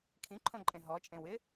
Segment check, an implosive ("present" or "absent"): absent